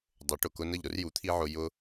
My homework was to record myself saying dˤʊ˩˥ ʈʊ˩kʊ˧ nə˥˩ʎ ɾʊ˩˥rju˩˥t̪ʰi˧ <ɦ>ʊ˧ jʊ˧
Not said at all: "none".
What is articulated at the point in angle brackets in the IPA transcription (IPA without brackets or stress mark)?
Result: ʕ